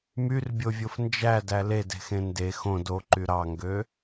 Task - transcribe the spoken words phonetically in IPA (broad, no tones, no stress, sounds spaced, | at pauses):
m y r bʲ o vʲ o f n d͡ʒ æ d æ l e d e̤ x ẽ n d e x õ d o ǃ y ɾ ɑ ŋ ɡ ø